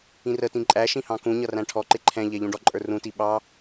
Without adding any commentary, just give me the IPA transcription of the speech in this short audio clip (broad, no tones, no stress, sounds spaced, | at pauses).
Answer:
ĩ r ə t ĩ ǃʼ æ ʃ ĩ h ɑ̃ k ũ ɲ ʌ r æ̃ ʈʰ ɔ ǃ ɪ ǃʰ ɛ̃ ʎ ɛ ʎ ũ ɖ ɔ ǃʼ ə˞ r ũ t i ɓ ɑ